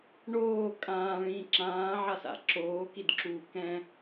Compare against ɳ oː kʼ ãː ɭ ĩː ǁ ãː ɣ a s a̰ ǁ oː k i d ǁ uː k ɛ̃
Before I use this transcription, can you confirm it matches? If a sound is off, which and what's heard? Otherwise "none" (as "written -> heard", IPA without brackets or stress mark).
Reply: ɣ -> ʕ